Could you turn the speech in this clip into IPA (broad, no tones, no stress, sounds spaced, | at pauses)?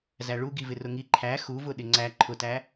z æ ɭ u ɡ i v ɪ r ʊ ŋ i ǃʰ æ x u v ʊ ɗ ɪ ŋ͡ǀ æ ǃʰ ʊ t æ